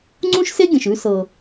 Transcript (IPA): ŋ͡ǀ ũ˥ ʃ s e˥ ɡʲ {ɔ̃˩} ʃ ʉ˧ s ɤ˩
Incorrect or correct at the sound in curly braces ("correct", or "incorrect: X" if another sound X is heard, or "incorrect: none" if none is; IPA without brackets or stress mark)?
incorrect: ə̃˩